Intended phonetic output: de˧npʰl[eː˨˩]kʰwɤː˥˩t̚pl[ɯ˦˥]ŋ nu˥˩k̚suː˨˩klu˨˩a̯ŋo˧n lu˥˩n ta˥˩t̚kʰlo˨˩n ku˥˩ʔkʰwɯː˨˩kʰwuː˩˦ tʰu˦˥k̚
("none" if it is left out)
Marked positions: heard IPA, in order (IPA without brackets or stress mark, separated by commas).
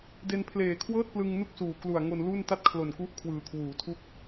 eː˨˩, ɯ˧